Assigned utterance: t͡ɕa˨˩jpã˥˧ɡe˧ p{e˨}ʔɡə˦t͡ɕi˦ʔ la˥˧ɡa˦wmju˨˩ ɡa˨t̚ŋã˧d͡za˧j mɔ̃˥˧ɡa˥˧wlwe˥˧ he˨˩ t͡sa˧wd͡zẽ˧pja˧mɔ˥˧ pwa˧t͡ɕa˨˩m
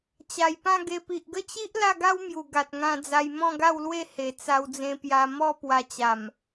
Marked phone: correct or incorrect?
incorrect